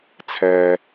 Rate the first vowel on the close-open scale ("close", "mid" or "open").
mid